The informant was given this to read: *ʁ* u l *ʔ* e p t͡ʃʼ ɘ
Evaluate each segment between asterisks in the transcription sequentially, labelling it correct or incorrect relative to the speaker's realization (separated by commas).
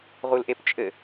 correct, correct